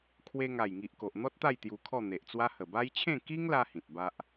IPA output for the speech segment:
kʰ w e˧ ŋ a˨˩ j ŋ i˨ ʔ k o˨ ʔ n̪ ɔ˦ t̚ t̪ a˥˧ j t̪ j u˧ kʰ ɔ˥˧ n̪ e˨ ʔ t͡s w a˦ h ə˨˩ b a˦ j t͡ɕʰ ẽ˥˧ k i˦ ŋ l a˧ h ĩ˨ t̚ b a˦ ʔ

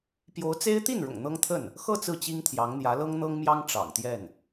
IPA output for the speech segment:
p j o˧˥ ʊ̯ t͡s e˥ ɪ̯ t̪ i˥˩ n ɻ ʊ̰˨˩ ŋ n̪ ɤ˥ ŋ t̪ʰ ə˥˩ n | x ɤ˥˧ t͡s ɹ̩˥˩ t͡ɕ i˥ ŋ t̪ʰ j ɑ˧˥ ŋ n̪ j ä˧˥ l ɤ˥ ŋ n̪ ɤ˥ ŋ m j ɑ˥ ŋ ʈ͡ʂ ɑ̰˨˩ ŋ t̪ j ɛ˥˩ n

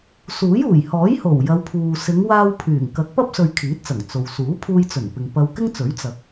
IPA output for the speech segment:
s uː˨˥ j uː˨˩ j h ɔː˨˥ j h o˨˩ w j ɐ˨˧ w pʰ uː˨ s ɪ˨˧ ŋ w aː˧ w pʰ yː˨˩ ŋ k ɐ˨˥ k̚ p ɐ˥ p̚ s ɵ˧ ɥ kʰ iː˨˥ t̚ t͡s ɐ˨˩ ŋ t͡s o˨ w s uː˨˥ pʰ uː˧ j t͡s ɵ˨˩ n p ɪ˨ ŋ p ɐ˧ w k ɪ˥ ŋ t͡s ɵ˨˥ ɥ t͡s ɐ˨˥ k̚

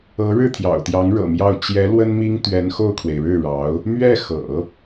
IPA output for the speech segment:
ɤ˧˥ ɻ ɻ̩˥˩ t̪ʰ j ɑ̰˨˩ ʊ̯ t̪ j ɑ˧˥ ŋ ɻ ɤ̰˨˩ m j ɑ˥˩ ʊ̯ t͡ɕ j ɛ˧˥ l w ə˥ n m i˥ ŋ t̪ ɥ ɛ˧˥ n x o˥˩ ʊ̯ kʰ w e˩ ɪ̯ ɻ ɻ̩˥˩ ɻ ɑ˧˥ ʊ̯ | m ɥ ɛ˥˩ x ɤ̰˨˩˦

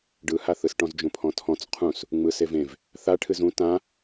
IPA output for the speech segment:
ɖ ɯ h a θ ɯ s ʈ ɔ̃ z d͡ʒ ũ pʰ ɔ̃ tʰ ɔ̃ t͡s qʰ ũ s | ŋ͡m ɯ s e v ẽ v | θ a ʈʰ ɨ z ũ t ã

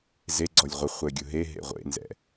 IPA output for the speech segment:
z e ɡ͡ǀ ɔ lʲ ʁʷ ə χʷ ɛ ɡʲ ʊ ɦ e ɦ ḛ ʁʷ ḛ n z ɛ̰

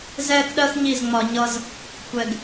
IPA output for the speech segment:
z ɛː˥ k ɗ ɜ˥ x ɲ i˥˩ z ŋ͡m ɒ˧ ɲ ʌ˥ z | kʷ ɛ˧ ɡ

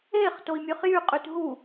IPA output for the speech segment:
e χ t o i̯ mʲ ø χ j y qʼ y t ɦ u

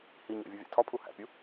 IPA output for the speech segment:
h i ɲ æ̰ vʲ u vʲ æ̰ tʰ ɒ pʰ u h æ̰ pʲ u

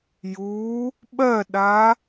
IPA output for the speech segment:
j u | ɓ ɜ ɗ a

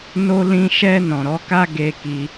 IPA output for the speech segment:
n o˦ l ĩ˦ ʃ ɛ˧ n ɔ̃˨ ɾ ɔ˨˦ k a˦ ɡ e˧ k i˧

